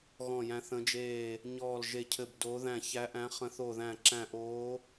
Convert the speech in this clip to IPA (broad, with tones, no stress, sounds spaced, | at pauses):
ɣ ɔ̃˧˩ j æ̃˨˦ θ ə̃˨˦ d͡ʒ eː˧˩ | ɲ ɔː˧˩ l ʒ e˧˩ cʰ ɘ˧˩ b d oː˨˦ ð æ̃˧˩ ç æ˨˦ ʔ æ̃˨˦ χ ə̃˨˦ θ o˧˩ ð æ̃˧˩ ǁ æ̃˧˩ ʔ oː˨˦